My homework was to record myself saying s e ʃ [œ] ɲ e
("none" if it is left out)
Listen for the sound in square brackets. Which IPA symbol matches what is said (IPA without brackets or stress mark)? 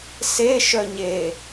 œ